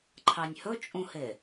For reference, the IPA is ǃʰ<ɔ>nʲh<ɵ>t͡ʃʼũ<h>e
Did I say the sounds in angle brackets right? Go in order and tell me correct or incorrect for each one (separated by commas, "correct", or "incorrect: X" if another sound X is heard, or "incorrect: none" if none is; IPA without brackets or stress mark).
incorrect: ɑ, correct, correct